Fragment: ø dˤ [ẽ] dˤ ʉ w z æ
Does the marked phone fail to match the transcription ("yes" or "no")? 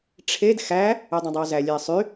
no